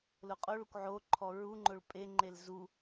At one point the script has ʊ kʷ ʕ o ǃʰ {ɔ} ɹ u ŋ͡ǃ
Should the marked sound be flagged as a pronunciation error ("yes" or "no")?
no